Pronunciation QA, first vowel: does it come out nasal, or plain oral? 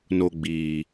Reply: oral